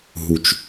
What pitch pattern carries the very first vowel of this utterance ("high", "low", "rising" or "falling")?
low